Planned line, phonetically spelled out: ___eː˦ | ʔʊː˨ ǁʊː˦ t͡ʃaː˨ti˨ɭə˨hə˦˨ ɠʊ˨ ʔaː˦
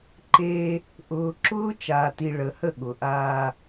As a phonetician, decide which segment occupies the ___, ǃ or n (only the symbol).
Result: ǃ